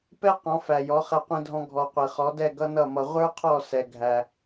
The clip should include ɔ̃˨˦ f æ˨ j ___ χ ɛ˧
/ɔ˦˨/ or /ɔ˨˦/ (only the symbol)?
ɔ˨˦